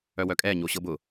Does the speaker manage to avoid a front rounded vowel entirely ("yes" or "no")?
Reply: no